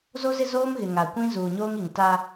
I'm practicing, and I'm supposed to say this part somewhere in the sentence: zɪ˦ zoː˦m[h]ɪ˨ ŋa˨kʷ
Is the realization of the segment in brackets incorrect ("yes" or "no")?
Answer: yes